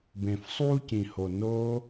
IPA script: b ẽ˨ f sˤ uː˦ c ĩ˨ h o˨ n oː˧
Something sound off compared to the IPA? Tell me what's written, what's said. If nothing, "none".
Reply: none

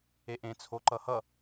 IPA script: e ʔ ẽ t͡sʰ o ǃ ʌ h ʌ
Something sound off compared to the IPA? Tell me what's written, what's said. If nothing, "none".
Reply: none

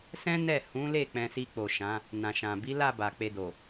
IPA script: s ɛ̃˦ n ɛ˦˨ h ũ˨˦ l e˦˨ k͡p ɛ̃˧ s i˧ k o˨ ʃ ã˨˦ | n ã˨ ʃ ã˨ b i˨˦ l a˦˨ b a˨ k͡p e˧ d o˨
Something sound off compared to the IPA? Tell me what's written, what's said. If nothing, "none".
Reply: k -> k͡p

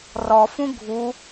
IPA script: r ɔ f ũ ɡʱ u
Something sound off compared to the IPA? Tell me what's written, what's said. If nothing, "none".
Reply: none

